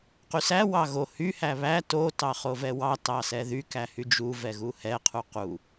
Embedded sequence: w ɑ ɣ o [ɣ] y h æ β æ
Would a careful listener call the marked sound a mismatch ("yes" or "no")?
yes